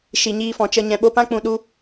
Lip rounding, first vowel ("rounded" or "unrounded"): unrounded